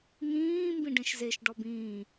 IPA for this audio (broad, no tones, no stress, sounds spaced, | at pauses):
ŋ ĩː m b ĩ ɖ ẽ ʃ z e ʃ ɖ ɔ b ĩː